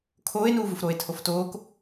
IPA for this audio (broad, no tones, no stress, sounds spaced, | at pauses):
kʰ oː e̯ n uː v u f ɾ oː e̯ tʰ o f t oː k